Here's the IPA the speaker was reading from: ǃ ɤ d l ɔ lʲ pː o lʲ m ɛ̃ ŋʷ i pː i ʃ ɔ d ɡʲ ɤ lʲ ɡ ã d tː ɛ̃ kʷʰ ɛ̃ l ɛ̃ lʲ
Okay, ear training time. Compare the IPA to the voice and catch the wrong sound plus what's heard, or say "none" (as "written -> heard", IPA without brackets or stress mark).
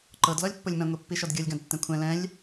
none